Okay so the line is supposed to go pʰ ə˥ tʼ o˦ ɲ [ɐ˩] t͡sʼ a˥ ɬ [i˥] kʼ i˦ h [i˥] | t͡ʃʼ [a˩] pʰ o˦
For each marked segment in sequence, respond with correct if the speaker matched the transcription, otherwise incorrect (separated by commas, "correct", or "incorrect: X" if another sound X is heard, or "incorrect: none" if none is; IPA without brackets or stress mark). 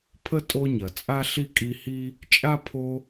correct, correct, correct, incorrect: a˥